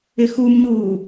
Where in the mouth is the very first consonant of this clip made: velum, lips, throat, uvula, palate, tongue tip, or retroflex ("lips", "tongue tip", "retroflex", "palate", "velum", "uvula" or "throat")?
velum